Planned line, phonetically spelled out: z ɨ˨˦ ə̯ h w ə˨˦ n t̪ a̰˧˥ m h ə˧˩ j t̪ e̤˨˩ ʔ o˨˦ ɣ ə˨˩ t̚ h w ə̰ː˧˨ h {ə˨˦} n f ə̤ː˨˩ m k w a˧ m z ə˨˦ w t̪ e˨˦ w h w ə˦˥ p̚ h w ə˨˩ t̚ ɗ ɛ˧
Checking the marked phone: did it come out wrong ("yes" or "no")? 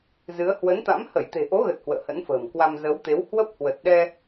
yes